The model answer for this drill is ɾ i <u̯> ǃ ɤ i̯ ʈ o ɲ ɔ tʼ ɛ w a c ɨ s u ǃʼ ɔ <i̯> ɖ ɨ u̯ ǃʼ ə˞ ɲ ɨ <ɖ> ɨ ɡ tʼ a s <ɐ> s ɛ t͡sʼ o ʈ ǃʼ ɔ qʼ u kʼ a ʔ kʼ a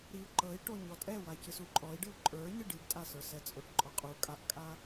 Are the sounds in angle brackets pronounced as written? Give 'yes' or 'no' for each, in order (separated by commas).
yes, yes, yes, no